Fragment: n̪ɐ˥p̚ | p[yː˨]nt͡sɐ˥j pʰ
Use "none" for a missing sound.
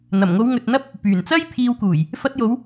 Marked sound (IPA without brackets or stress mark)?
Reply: yː˨˩